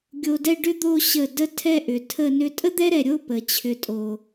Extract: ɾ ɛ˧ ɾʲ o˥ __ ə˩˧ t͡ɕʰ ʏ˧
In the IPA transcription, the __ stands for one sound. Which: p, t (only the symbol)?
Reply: p